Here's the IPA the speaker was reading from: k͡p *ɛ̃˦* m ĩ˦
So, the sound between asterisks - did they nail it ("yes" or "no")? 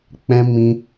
yes